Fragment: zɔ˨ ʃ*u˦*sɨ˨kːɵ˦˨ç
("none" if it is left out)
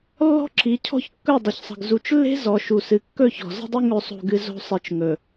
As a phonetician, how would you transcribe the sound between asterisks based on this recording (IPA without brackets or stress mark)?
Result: u˨